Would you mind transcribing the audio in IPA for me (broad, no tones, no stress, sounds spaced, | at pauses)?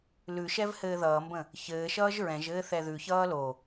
l ʉ ʃ ɛ v h ɘː ð ʌː m b ə̃ | ç ɘː ʃ ʌː ʒ ɹ ɛ̃ ʒ ɘː θ ɛ ð ʉ ç ʌː l o